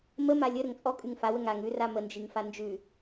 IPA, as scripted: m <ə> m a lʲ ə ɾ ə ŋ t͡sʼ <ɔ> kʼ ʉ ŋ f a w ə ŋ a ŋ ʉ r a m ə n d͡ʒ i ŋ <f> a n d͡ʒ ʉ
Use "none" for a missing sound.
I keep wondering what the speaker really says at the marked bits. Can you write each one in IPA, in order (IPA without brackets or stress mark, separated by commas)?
ə, ɔ, f